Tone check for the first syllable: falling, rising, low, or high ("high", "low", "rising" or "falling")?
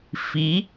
rising